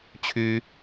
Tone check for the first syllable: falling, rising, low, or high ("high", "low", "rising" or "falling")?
high